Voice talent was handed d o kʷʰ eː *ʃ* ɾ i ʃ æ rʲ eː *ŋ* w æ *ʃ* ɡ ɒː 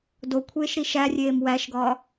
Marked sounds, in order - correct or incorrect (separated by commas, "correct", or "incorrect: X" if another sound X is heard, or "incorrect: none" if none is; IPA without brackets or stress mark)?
correct, incorrect: m, correct